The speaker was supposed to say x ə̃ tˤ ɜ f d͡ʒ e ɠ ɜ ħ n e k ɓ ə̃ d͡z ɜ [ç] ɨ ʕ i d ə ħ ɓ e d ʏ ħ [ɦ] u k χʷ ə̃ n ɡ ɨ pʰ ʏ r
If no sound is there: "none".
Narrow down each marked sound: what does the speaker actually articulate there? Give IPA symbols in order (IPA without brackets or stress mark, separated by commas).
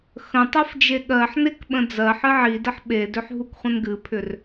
ħ, ɦ